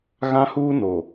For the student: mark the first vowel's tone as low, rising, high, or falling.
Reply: high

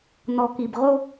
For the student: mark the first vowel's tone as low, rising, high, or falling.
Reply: low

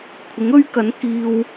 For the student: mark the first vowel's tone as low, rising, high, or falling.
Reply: rising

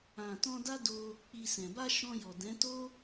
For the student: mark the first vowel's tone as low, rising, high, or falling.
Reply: low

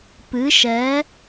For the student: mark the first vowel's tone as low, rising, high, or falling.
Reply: rising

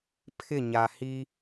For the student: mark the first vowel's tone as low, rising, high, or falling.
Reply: falling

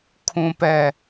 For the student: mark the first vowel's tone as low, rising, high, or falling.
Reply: low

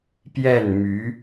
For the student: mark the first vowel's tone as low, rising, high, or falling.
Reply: falling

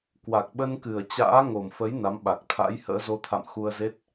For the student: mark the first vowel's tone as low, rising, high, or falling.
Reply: low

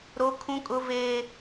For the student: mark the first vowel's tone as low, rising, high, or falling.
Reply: high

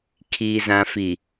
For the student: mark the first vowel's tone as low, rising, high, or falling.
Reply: high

